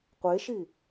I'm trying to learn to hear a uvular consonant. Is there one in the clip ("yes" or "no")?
yes